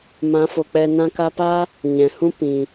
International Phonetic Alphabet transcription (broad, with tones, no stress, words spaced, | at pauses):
mã˨˦fo˨k͡pɛ˧ nã˧ka˧paː˦ | ɲɛ̃˨hũ˦ pĩ˨